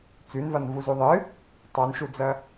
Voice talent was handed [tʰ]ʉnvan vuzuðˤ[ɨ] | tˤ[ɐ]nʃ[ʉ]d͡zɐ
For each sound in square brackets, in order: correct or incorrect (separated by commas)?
incorrect, correct, incorrect, incorrect